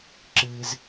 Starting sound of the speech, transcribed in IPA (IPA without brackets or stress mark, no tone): ǁ